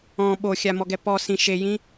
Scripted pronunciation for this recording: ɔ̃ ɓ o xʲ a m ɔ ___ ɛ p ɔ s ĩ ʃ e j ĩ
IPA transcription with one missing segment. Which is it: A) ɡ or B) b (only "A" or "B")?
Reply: A